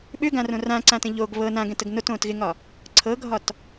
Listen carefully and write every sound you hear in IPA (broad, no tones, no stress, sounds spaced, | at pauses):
ɓ ʏ ɡ ã r õ r ã ǀ ã t ə̃ ʎ o ɡ β ɤ n ã ɡ ɛ̃ t ə ɡ n o t õː t ɣ ɪ ŋ ɒ | ǀʰ ɤ ɡʱ ɒ t